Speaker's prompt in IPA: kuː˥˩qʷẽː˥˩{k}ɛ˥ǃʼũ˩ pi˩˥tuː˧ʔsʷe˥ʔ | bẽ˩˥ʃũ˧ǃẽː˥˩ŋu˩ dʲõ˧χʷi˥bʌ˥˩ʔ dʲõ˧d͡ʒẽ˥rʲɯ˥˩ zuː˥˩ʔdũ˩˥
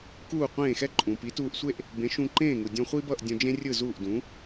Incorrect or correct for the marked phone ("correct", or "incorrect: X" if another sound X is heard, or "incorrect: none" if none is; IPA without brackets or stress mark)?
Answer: incorrect: x